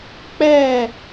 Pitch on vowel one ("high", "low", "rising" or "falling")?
falling